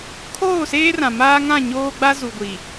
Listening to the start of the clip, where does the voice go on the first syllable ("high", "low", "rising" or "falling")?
falling